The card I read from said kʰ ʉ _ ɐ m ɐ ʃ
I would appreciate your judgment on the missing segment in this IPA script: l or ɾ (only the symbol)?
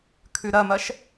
ɾ